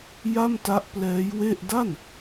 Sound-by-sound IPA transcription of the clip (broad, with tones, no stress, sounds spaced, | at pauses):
j a˥˩ m t a˦˥ ʔ p l ɛː˦˥ j w e˥˩ ʔ d a˥˩ n